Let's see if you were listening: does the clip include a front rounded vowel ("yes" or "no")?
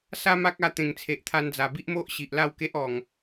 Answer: no